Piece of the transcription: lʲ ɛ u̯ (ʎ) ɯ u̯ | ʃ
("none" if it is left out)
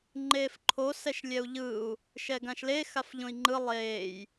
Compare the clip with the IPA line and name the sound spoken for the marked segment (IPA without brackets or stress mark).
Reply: ʎ